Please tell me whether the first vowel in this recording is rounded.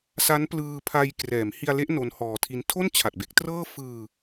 no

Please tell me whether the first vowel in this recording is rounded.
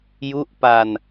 yes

